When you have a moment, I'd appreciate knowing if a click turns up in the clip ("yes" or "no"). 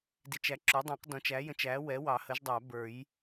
yes